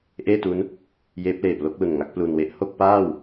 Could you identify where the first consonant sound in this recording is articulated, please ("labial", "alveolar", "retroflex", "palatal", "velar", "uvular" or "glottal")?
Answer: glottal